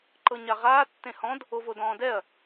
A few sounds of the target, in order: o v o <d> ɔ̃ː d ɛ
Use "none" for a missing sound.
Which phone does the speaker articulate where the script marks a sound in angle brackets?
d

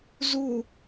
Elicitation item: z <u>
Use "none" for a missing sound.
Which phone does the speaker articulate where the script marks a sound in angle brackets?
u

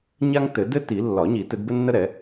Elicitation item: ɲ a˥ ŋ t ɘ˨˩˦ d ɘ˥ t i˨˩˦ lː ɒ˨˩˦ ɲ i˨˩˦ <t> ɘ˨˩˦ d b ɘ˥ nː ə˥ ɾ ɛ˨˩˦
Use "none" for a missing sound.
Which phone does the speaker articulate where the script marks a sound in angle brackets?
t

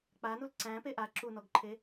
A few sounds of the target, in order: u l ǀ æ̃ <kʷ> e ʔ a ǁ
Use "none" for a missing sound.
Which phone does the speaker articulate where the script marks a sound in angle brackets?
p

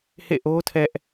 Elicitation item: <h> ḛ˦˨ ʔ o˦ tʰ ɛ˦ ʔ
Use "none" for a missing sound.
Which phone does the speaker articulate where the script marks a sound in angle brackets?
h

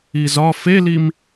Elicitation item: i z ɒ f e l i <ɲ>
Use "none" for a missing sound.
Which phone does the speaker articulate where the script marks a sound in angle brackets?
m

